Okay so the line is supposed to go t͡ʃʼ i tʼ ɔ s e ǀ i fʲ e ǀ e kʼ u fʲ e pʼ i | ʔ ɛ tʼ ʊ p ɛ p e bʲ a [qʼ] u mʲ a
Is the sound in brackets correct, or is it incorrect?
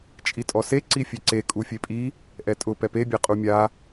correct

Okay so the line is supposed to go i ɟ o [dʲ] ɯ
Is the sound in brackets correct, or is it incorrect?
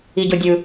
correct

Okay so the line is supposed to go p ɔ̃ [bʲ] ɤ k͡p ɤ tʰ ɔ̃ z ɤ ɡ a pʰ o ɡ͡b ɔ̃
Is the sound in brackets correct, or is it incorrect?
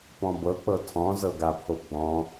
incorrect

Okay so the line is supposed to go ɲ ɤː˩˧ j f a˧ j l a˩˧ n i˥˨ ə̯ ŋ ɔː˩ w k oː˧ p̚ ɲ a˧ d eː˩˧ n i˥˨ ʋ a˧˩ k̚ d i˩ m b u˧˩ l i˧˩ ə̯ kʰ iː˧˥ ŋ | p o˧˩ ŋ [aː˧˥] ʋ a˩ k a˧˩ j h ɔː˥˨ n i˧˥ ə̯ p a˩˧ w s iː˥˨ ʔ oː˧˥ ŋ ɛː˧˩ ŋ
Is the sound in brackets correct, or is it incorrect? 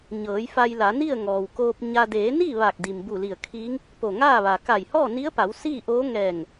incorrect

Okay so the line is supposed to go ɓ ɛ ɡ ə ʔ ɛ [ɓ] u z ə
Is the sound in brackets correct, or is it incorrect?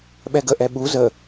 correct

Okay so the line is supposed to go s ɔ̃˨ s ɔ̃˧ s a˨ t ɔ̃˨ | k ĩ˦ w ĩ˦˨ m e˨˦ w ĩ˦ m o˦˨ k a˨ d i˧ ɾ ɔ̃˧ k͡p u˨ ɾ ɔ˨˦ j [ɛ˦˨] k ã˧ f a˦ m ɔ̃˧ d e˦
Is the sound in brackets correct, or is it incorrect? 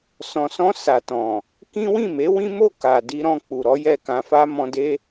correct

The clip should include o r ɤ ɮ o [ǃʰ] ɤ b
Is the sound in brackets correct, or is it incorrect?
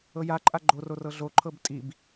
correct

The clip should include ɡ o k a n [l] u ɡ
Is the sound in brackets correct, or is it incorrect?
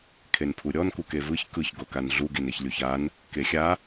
incorrect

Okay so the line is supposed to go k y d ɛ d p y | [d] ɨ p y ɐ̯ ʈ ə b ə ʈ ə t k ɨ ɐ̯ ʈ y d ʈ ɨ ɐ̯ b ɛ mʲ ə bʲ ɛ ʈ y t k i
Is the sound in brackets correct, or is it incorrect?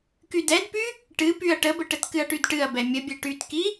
incorrect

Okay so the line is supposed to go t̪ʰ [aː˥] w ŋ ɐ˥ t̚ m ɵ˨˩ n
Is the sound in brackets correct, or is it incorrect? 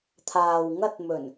incorrect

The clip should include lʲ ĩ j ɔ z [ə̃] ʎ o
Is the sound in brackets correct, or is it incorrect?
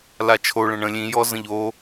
correct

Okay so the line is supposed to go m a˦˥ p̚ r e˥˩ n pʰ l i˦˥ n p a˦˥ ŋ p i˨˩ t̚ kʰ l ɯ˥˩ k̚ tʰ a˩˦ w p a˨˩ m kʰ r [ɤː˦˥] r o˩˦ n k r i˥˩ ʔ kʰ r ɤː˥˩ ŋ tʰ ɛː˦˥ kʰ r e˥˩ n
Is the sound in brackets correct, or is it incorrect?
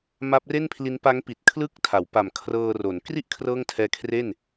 incorrect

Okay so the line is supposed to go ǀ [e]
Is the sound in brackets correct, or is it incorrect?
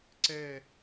incorrect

